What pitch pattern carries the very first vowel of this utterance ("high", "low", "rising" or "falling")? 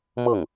falling